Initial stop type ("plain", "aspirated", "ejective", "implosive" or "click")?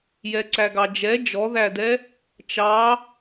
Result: click